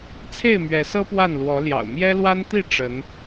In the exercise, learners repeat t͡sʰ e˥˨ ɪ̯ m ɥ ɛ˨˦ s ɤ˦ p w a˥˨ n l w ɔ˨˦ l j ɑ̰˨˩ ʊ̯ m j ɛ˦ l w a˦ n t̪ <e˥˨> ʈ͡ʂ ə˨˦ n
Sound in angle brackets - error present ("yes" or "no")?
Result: yes